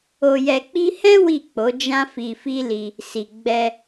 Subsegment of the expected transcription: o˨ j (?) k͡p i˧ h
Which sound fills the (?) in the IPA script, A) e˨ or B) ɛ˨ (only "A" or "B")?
B